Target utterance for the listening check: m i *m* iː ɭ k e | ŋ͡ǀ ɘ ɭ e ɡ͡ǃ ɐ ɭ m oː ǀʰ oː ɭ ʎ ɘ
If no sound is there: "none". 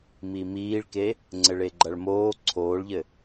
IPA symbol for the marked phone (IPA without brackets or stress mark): m